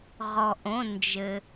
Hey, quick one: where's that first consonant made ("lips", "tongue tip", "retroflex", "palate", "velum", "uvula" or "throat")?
uvula